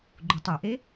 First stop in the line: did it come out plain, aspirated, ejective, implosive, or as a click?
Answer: click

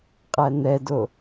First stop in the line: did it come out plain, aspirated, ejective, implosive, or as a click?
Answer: ejective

